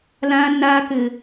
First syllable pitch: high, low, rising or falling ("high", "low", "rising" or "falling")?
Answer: low